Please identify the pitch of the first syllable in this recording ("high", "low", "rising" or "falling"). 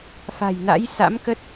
low